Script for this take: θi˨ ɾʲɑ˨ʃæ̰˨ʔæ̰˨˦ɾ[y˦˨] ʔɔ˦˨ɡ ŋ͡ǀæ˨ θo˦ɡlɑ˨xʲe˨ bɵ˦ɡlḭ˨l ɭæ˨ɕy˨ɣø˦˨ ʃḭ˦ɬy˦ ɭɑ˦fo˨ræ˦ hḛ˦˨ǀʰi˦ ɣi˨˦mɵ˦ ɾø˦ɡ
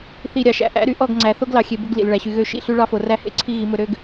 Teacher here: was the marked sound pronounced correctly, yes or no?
no